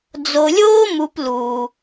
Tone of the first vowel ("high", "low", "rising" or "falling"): low